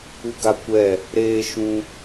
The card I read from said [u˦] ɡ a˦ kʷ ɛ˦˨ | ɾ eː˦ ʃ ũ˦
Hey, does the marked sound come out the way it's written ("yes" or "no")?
yes